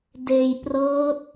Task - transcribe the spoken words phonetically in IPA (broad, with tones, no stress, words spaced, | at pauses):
deː˧j prɤː˦˥t̚